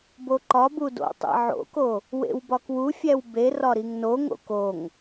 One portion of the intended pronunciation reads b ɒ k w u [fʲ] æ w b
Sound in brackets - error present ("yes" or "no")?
no